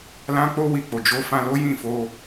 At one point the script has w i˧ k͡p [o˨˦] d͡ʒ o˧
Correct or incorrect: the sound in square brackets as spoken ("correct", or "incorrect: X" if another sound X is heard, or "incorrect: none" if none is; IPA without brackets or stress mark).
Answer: incorrect: o˨